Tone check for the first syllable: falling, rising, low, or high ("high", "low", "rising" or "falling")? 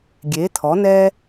rising